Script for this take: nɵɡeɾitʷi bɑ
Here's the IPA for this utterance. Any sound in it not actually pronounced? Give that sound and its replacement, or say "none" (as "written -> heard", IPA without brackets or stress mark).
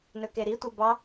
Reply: ɡ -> k